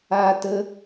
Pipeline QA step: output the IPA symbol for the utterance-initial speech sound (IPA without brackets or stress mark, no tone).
aː